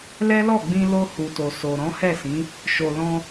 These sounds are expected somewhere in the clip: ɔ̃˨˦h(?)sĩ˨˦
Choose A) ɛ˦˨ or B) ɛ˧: A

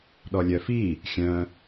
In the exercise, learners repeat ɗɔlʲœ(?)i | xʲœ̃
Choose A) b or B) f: B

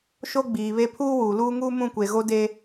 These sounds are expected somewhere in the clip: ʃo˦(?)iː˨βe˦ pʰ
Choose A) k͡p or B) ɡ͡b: B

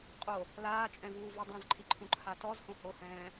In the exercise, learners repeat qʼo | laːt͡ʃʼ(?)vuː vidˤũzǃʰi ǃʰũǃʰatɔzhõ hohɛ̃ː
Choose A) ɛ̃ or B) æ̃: A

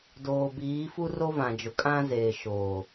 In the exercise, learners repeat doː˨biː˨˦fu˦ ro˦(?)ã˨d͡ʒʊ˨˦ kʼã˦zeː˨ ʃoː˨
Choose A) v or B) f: A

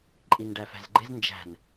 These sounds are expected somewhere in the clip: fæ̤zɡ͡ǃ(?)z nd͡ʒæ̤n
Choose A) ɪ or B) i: A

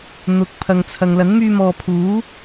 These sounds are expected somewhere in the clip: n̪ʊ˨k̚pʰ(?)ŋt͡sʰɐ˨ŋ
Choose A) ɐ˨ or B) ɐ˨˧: A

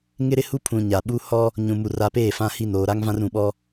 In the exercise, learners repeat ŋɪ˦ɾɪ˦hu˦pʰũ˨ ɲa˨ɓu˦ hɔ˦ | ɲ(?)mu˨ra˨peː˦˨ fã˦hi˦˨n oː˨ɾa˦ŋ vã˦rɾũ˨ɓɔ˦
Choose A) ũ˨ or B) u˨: A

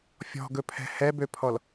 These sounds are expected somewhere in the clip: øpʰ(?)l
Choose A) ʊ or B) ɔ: B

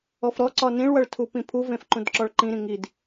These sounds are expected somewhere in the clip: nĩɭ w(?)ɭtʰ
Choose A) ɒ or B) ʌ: B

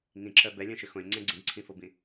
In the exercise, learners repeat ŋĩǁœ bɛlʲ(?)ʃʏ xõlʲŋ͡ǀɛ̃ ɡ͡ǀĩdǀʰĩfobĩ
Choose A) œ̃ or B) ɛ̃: A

